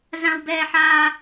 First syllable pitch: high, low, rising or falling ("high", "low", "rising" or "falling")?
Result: high